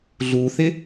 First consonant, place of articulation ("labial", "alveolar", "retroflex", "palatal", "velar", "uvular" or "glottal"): alveolar